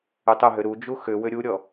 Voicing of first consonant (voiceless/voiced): voiceless